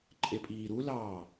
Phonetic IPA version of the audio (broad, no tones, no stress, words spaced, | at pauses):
ǃʼepʼiːɾulɑː